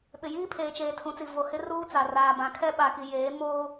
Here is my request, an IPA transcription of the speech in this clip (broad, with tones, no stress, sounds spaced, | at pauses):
ɓ ɪ˨ j iː˦ pʰ eː˨ t͡ʃ eː˨ tʰ ũ˨˦ t͡s i˨ v o˨ h ɪ˦ r uː˦ t͡s a˨ r aː˨ b ã˨ kʰ ɛ˦ ɓ a˨ k i˨ j eː˨˦ m oː˦